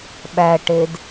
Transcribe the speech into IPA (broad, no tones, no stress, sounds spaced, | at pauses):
ɓ æ ʈ e d